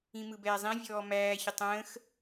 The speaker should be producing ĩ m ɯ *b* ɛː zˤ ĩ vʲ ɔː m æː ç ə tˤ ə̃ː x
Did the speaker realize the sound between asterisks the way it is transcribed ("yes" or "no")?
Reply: yes